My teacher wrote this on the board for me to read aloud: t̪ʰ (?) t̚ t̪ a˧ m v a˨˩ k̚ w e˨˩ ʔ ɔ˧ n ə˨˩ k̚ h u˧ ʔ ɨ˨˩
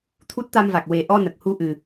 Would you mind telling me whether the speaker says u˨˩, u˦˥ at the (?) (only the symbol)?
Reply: u˦˥